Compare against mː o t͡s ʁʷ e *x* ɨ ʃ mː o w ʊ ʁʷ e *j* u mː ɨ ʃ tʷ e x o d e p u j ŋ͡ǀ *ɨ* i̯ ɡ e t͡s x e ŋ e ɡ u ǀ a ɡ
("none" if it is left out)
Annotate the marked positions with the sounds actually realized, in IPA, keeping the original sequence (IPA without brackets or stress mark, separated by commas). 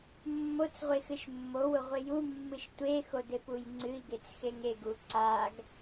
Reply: x, j, ɨ